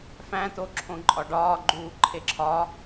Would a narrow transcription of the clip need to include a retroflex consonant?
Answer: yes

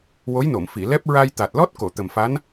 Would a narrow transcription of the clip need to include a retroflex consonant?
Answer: no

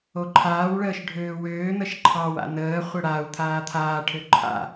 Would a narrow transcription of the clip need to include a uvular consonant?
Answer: yes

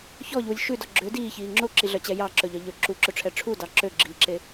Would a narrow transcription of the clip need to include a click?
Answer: yes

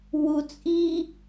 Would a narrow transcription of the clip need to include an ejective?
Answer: yes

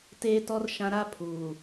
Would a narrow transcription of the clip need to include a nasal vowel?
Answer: yes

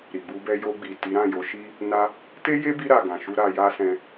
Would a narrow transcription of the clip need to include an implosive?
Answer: no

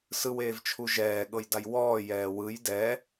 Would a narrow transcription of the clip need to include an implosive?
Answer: yes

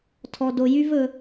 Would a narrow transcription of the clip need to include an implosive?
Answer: no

